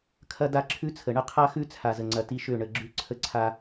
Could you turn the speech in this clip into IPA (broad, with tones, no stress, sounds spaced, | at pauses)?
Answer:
kʰ ɐ˦ d a˦ ǁʰ ʉ˦ t͡sʰ ə˨ ɳ ə˦ qʰ a˦ x ʉ˦ t͡sʰ a˨ z ə˨ ŋ͡ǀ ɐ˨ t i˦ ʃ ø˦˨ ɳ ə˨ ɡ͡ǁ ʉ˦ ǀʰ ə˦ ǀʰ a˦